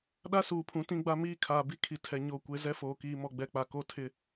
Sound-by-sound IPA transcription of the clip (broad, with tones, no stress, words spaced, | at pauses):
ɗa˦suː˨pʰũ˨˦ tĩ˦ɡ͡ba˦ miː˦kʰaː˨bi˦ kʰi˨tʰɛ˨ ɲo˦˨kʷe˦ zɛ˦foː˨ kiː˨mɔ˨ɡ͡bɛ˨k͡pa˨ ko˦tʰɪ˦˨